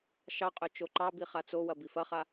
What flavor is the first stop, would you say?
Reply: ejective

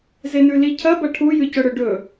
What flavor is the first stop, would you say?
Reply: aspirated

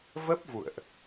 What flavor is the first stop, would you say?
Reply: plain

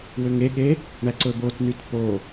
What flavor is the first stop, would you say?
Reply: implosive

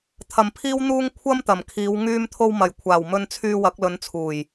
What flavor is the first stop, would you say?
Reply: aspirated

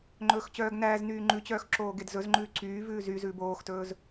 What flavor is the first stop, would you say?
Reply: click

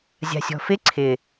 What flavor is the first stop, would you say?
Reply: click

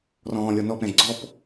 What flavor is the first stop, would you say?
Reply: plain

